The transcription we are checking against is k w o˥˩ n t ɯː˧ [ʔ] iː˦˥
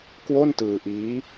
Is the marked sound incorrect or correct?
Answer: correct